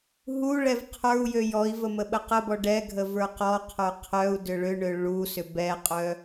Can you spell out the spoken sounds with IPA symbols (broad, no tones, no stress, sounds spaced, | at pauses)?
ɦ u ɭ ɛ v qʰ ə˞ u̯ j ø j ɔ i̯ v ə m ə ɓ ə q ə b ɔ ɖ ɛ ɡʱ ə v ə˞ q ɔ qʰ ə˞ qʰ œ u̯ d ʏ ɭ ʏ ɳ ø ɭ u s ʏ b ɛ qʼ œ